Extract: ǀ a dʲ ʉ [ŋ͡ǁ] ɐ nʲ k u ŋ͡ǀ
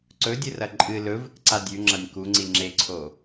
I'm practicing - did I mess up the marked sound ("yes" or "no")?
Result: no